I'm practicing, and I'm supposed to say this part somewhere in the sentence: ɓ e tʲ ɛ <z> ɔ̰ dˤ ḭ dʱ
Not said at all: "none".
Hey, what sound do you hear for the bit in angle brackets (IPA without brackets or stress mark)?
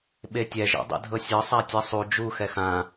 ʒ